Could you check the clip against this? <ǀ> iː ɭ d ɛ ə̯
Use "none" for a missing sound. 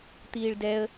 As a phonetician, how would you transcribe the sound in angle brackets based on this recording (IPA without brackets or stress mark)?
t̪